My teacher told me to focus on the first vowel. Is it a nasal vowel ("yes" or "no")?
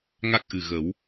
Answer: no